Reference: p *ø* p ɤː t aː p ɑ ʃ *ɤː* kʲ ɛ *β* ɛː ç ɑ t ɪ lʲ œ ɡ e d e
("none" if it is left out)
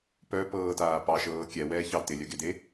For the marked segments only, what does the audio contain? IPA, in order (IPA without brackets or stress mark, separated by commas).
œ, ɤː, w